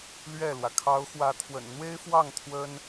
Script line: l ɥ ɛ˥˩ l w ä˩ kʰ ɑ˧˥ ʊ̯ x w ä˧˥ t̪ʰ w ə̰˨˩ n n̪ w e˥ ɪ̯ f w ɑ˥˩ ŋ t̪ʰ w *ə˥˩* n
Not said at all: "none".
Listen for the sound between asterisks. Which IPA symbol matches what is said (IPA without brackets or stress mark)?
ə˥